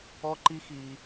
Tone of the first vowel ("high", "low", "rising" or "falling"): high